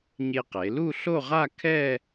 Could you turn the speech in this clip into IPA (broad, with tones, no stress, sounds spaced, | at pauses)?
ɲ e˧ q e˩˧ l u˥˧ ɬ o˥˧ ʁ a˥˧ kʰ ɛ˥˧